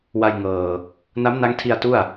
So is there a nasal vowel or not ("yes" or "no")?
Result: no